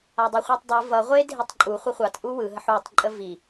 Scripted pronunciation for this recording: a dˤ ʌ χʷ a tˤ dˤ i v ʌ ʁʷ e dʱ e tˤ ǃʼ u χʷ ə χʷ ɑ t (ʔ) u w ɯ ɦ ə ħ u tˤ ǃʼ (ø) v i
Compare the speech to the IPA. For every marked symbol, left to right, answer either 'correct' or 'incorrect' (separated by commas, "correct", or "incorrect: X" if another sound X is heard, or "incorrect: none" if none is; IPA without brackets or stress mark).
correct, incorrect: ə